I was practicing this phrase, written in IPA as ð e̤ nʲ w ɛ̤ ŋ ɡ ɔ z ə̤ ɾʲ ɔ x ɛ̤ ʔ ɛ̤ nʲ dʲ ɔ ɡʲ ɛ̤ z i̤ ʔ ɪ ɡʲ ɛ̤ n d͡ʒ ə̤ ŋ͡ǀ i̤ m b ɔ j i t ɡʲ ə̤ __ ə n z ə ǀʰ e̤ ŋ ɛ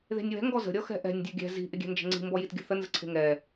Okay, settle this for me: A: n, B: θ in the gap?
B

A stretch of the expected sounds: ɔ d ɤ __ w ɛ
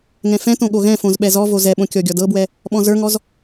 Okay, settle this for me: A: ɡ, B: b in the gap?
B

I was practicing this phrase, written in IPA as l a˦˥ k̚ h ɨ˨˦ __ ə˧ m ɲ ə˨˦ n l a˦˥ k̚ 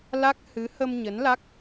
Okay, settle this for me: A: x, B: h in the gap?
B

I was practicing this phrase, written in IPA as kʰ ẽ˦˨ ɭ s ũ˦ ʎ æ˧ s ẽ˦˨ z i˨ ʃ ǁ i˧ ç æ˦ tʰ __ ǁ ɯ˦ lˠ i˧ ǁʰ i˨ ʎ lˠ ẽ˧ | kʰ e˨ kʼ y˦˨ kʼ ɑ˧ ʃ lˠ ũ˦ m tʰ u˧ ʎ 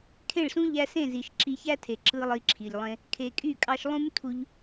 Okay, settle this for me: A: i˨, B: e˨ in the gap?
B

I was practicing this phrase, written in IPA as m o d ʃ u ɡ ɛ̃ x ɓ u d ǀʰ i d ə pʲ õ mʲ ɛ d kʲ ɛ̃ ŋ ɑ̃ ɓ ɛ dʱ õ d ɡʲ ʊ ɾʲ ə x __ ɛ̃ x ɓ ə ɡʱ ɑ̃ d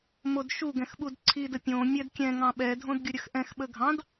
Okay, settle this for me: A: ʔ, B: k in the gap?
A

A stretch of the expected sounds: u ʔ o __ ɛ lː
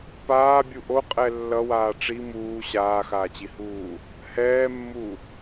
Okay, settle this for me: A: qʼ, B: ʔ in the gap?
A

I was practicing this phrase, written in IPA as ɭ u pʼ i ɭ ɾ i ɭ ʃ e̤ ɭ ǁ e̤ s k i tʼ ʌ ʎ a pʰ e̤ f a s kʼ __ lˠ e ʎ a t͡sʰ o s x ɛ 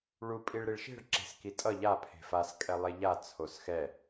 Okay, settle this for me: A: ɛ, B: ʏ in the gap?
A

